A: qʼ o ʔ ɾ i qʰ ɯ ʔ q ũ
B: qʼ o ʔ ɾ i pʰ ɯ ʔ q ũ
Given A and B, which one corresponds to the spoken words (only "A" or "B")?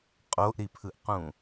B